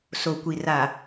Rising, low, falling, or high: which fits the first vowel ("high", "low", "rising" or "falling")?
low